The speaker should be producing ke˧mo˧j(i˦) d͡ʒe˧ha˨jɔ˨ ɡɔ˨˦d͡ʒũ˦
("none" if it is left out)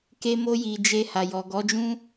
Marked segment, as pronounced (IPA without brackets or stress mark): i˨